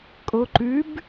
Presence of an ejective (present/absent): present